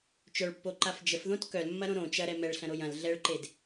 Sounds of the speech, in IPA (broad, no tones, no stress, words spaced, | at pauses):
t͡ʃœɭpːoǃaf d͡ʒəfðõt kœlmːɐɾõ ɾõ t͡ʃɐɾɛ mɛɭɬɐ̃ɾoj ɐ̃l ɮɛɭǃed